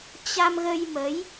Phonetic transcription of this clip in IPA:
t͡ɕa˧mɣə˧jmə˨˦j

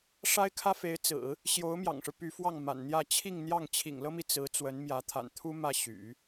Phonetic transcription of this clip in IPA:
ʂa˥ɪ̯kʰä˥fe˧˥ɪ̯t͡sɹ̩˨˩˦ | ɕjo˧˥ʊ̯mjɑ̰˨˩ŋʂɻ̩˦ py˧˥fwɑ˥˩ŋma̰˨˩nn̪jä˥˧ t͡ɕʰi˥˧ŋn̪jɑ˥˩ŋ t͡ɕʰḭ˨˩ŋlɤ˥mi˨ t͡sɹ̩˧˥ t͡swə˧˥n mjä˧˥t̪ʰa̰˨˩nt̪ʰu˥ mä˥˩ɕy̰˨˩˦

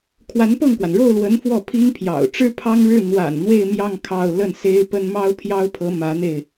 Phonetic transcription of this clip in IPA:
kʰwa˧˥npɤ˥˩ŋkwa˩n ɻo˥˩ʊ̯lwə˧˥n fwɔ˥˩pʰi˥ŋpʰjɑ̰˨˩ʊ̯ ʈ͡ʂɻ̩˥pʰɑ˥ŋɻɻ̩˥˩ n̪wa̰˨˩n n̪we˥˧ɪ̯mjɑ˥˧ŋ kʰɑ˥˧ʊ̯ lə˥˩n se˥ɪ̯pə˥n mɑ˥ʊ̯pʰjɑ˥ʊ̯pʰɤ˧˥ mä˧˥n̪e˧ɪ̯

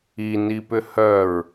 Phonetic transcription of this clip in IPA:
inipʏ hœɹ

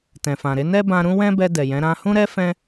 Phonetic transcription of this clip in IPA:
tɛ̃˨fã˨ɾe˨˦ nɛ˦bã˧ɾũ˦ wɛ̃˦bɛ˧ dɛ˨jɛ̃˨˦ ɾã˧ hũ˦ ɾɛ˦ fɛ̃˦

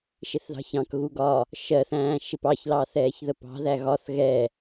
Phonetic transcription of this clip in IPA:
ʃɪθðɑ̤çɑ̃kɣu ɡɒ | ʃɜθæ̃ː ʃɪpɑçlɑ θɛːçðəpɑ̤ðæ ɣɒθ ɣɛ

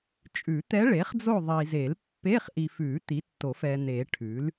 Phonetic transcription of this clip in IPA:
t͡ʃʼʉ˨˩˦t̪ɛ˧˥ ɭe˩˥χd͡zo˦˨ ðˤi˨ze˨˩˦lpːe˧˥˧χ ʔi˨fʉ˨˩˦ t̪i˩˥tːo˨˩˦fɛ˨n̪e˨˩˦ ʈʰʉ˩˥l

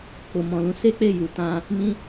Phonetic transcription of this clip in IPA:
k͡po˨mɔ̃˨lũ˧ se˦k͡pe˦˨ju˨ tã˧ | mĩ˦

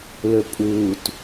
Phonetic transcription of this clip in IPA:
lɵpʼuːt

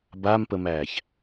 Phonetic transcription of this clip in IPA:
bampəmæːç

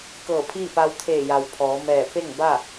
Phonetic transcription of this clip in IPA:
kɤː˧˩pʰiː˥˨ pa˧wt̪ʰeː˧˩ja˩w pʰɔː˩˧mɛː˧˩ pe˥˨ŋ ba˥˨

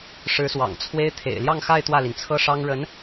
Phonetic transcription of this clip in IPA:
ʂɻ̩˧˥swɑ̰˨˩ŋt͡sʰwe˥ɪ̯ t̪ʰḛ˨˩ɪ̯ljɑ˥˧ŋxa˥˧ɪ̯ t̪wä˥˩li˩nt͡sʰɤ˥ʂɑ˥ŋ ɻə˧˥n

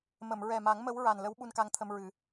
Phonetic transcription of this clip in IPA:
mə˨˩˨mɹɛ˨˩ma˨˩˦ŋ mə˧˥w ɹa˨˩nlə˧˥w ɓu˧nka˧ŋt̪ʰə˧mɹɨ˨˩˦

